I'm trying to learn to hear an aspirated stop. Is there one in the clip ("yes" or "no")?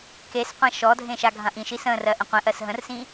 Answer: no